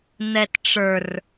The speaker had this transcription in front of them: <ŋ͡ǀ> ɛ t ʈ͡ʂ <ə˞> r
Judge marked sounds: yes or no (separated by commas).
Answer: no, yes